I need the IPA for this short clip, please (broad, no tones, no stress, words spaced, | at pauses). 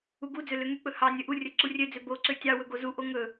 uɡud͡zø løŋyk͡pɵ hɑ nʲɵʔurʲɵ ǀurʲød͡zø boǀø tʲɑwɵ ɡozuʔo ŋɵ